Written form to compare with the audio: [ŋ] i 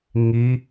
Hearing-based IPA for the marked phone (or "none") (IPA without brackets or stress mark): ŋ